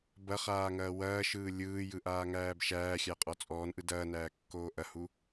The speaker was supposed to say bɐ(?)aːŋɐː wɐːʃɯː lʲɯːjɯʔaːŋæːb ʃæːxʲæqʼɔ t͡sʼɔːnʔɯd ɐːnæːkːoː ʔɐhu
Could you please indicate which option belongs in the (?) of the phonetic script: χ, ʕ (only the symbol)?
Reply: χ